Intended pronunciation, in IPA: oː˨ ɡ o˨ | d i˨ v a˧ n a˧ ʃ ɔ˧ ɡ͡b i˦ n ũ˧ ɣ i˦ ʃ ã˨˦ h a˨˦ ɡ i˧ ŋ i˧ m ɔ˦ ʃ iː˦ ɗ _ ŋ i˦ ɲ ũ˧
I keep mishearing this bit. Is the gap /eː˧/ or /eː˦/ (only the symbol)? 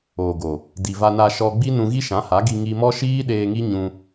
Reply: eː˧